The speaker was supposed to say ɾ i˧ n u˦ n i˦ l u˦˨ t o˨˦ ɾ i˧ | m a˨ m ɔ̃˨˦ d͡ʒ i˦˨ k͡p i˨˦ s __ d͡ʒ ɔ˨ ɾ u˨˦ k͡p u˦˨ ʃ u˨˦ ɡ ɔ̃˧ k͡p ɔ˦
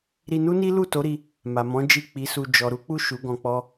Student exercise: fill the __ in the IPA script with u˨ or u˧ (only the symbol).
u˧